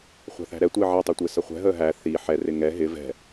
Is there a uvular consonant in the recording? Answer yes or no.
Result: yes